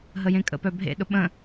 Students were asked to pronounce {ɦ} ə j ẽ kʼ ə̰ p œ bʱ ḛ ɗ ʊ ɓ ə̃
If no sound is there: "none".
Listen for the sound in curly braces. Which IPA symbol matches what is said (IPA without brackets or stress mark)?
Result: ɦ